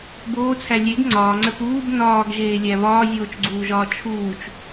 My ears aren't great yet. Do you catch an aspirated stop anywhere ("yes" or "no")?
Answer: yes